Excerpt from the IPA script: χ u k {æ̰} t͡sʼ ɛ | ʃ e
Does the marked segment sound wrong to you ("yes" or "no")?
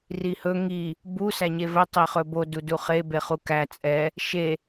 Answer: yes